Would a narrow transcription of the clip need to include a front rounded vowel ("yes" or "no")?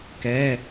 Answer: no